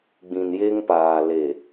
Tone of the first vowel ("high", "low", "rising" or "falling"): low